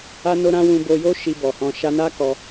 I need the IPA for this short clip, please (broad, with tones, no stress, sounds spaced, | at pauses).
a˦ n o˦ ɾ ã˦ w ũ˧ b o˧ j o˦ ʃ i˧ b ɔ˨ h ɔ̃˧ ʃ a˧ n a˦ k ɔ˧